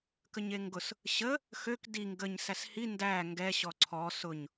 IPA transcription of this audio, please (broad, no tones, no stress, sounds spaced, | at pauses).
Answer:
k ə ɲ e ŋ ɡ ʊ s | ɕ ə | x ø k d i ŋ ɡ ə ɲ s æ s h i n d æ ŋ ɡ ɛ ɕ ɔ ǀʰ ɔ s ʊ ɲ